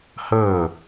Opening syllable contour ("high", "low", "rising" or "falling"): falling